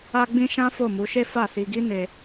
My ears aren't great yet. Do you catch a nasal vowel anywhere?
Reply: yes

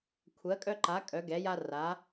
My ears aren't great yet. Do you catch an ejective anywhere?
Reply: yes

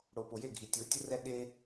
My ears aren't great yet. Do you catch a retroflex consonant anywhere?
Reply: yes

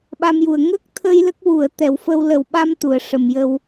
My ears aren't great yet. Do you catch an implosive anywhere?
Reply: yes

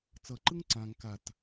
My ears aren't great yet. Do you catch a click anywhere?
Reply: yes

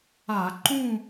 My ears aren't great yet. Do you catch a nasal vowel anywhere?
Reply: yes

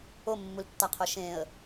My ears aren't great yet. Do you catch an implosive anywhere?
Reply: no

